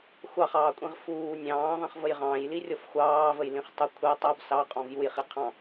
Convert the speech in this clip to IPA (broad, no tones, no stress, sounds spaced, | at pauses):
xʷ ɑ χ ɑː kʷʼ ĩ ʁ f uː nʲ ɑ̃ː ðˤ ĩ χ v ə j ʁ ɑ̃ j l i rʲ ɔ f xʷ ɑː v ə j l ĩ χ tˤ ə kʷʰ ɛ tˤ o b s ɑ qʼ ɔ̃ v j u j χ i qʰ ɑ̃